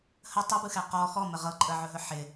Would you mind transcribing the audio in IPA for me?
h ə tˤ ɯ b ɯ x ɛ q ɔ x ɔ m ə ʁ ɤ ǃʼ ə ʕ ɵ ɦ ɵ ħ ɪ

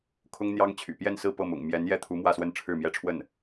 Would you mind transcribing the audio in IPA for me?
kʰ ʊ˥ ŋ n̪ j ɑ˥ ŋ t͡ɕʰ y̰˨˩ p j ɛ˥˧ n s ɹ̩˥˧ p ɤ˥˩ m ʊ̰˨˩ ŋ m j ɛ˧˥ n j ɛ˥˩ t̪ʰ u˧˥ m w ä˥˧ s w ə˥˧ n ʈ͡ʂʰ ɻ̩˥˩ m j ɛ˥ ʈ͡ʂʰ w ə˥˩ n

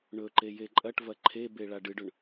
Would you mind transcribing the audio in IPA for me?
ɳ ɵ ǃ e j e ǃʼ ɐ ʈ v ɐ ǃʰ e b e ɭ a ɖ ɨ ɖ ɵ ɳ

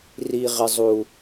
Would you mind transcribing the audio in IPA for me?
r i˦ ʁ ɪ˦ zˤ u˦

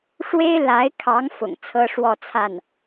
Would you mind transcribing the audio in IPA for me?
ʂ w e˥ ɪ̯ l a˧˥ ɪ̯ kʰ ɑ˧˥ ŋ f ʊ̰˨˩ ŋ t͡sʰ ɤ˥ ʂ w ɔ˥˧ t͡sʰ a˥˩ n

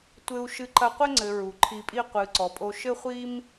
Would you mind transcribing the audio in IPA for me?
tʷ ɘ˧ u̯ ʃ ɨ˧ ǃ ɐ˧ qʷ ɘ˦ ŋ͡ǀ ɘ˨ ɹ u˨ ǃʰ i˧ pʼ i˦ qʷ ɨ˨ ǀ ɔ˨ pʼ o˧ ʃ ɘ˦ χʷ i˦ m

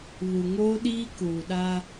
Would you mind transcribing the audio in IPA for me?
β u˨ ŋ oː˦ ɗ iː˦ k uː˨ ɗ a˦

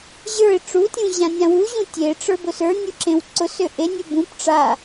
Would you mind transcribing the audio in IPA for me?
ʑ ə˞ ɪ̯ ʈ͡ʂ u tʲ ũ ʑ ã nʲ ã w u ʑ ũ tʲ e ʈ͡ʂ ə˞ b ʊ s ə˞ nʲ u ǁ ẽ w ǀ ʊ s ø ʔ e nʲ u b ũ p ʈ͡ʂ a

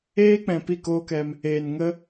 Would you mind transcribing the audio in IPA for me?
eː˦ k͡p ɛ̃˨ p i˦˨ k oː˦ k ɛ˧ m | eː˨ n ŋ ə˧

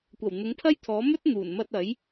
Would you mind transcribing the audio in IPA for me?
kʷ ɐ˨˩ w n̪ ʊ˨˥ ŋ pʰ ɐ˥ j t̪ʰ ɔː˨˥ m ɵ˥ t̚ n̪ uː˨˩ n m ɐ˧ t̚ ɐ˨˥ j

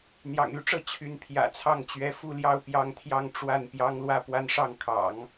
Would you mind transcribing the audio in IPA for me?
n̪ j ɑ̰˨˩ ŋ y˧˥ ʈ͡ʂ ɤ˥˩ t͡ɕʰ y˧˥ n pʰ j ä̰˨˩ t͡sʰ ɑ˥˩ ŋ t͡ɕ ɥ ɛ˧˥ f u˥˧ l j ɑ˥˧ ʊ̯ p j ɑ˥˧ ŋ t̪ʰ j ɑ˥˧ ŋ ʈ͡ʂ w a˥˩ n p j ɑ˥ ŋ l w ä˥˧ p w a˥˧ n ʂ ɑ˥˩ ŋ kʰ ɑ̰˨˩˦ ŋ

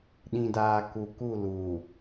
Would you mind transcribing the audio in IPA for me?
ɗ ĩ˨ d aː˨ k u˨ k u˦˨ l uː˨

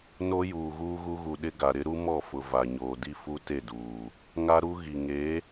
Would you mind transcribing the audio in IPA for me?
n o˦ j uː˨ ɣ uː˦ ɣ u˦ ɣ u˨ ɗ ɪ˦ ɡ a˨ ɾ ɪ˦ ɾ u˦ m ɔ˦˨ f ʊ˨ v a˨ ɲ oː˨ d i˦ f u˦ t e˦˨ d uː˨ | ŋ a˦ ɾ u˦ ɣ i˨ ŋ e˨˦

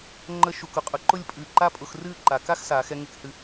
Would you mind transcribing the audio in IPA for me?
ŋ͡ǃ ə˥ ʃ u˧ k ʊ˧ qʼ ʊ˧ ǃ ʊ˥˧ lʲ pʼ ɨ˧˩ ǃ a˥ pʼ ʊ˧ x r ɨː˥˧ ǃ a˩˧ k a˥ x s aː˩˧ x ɛ˧ ŋ e˧ k h ɨ˧

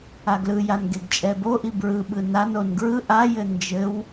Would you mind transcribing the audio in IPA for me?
a ɡ l ɯ j a n ɡ e ɡ t͡ʃʼ ɛ b o ʔ i b ɹ ɯ ɓ ɯ n a n o n ɡ ɹ ɯ ʔ a j ɘ n d͡ʒ ɘ w

